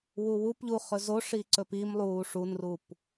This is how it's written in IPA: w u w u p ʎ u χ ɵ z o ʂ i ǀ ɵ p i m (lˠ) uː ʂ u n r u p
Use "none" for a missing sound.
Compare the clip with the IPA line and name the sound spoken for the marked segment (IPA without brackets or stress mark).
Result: lˠ